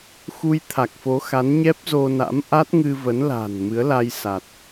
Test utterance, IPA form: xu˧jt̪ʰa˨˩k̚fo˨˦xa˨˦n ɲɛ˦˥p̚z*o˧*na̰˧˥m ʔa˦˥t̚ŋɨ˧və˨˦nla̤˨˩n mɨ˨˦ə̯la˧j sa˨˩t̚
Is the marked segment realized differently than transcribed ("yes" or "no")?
no